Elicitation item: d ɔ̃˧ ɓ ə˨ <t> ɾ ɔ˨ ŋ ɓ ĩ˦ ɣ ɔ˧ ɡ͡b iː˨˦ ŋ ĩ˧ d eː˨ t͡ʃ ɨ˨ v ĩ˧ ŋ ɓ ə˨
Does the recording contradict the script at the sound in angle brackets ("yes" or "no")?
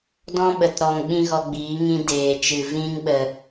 no